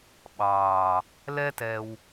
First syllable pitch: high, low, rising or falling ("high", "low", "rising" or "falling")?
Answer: low